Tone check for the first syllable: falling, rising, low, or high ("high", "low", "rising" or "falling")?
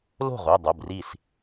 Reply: falling